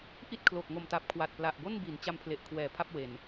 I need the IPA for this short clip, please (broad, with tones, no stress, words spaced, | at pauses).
ʔi˥˩t̚kʰlo˨˩k̚ ŋo˨˩mta˨˩p̚ kʰwa˨˩t̚pla˨˩ʔbo˥˩nbi˩˦n t͡ɕa˦˥mpʰle˨˩ʔkʰwɛː˨˩ pʰa˥˩p̚we˨˩n